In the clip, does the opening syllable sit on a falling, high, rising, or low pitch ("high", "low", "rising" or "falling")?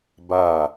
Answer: falling